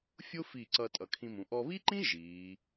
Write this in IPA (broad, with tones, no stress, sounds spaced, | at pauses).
fʲ ʊ˥ f i˧˩ ǀ ʌ˧ tʼ ʌ˩˧ kʰ ĩ˧ m ũ˩˧ ʔ ɔ˧ β i˥ ǃ ĩ˥ ʒ iː˩˧